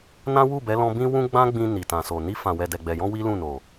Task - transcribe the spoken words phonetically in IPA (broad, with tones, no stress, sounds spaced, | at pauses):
n ã˦ w u˦˨ b ɛ˨˦ l ɔ̃˧ b ĩ˦ w ũ˦ ɡ͡b ã˦ ɡ͡b ĩ˧ n i˨ t ã˨ s o˨ n i˧ f ã˨ w ɛ˨ d ɛ˨ ɡ͡b ɛ˨ j ɔ̃˧ w i˦ l ũ˦˨ n o˨